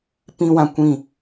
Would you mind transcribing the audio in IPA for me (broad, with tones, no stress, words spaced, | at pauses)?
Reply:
pĩ˦wã˧kʷĩ˦˨